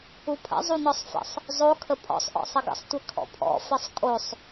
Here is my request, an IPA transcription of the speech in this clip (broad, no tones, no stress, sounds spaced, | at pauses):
u pʰ ə̰ zˤ u n ɔ sˤ f ə̰ sˤ | zˤ o kʰ ə pʼ ɔ̰ sˤ ʔ ɔ̰ sˤ ɘ ɡ ə̰ sˤ tʷ ɘ kʰ ɔ̰ pʰ ɔ̰ f ɘ sˤ kʼ o sˤ